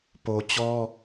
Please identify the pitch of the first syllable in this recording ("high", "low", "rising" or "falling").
low